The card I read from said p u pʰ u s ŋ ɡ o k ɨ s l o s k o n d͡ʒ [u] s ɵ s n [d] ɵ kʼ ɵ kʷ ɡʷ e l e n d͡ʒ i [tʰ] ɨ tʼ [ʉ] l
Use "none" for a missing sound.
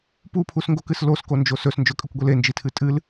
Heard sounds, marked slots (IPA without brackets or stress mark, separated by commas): o, d͡ʒ, tʰ, ɨ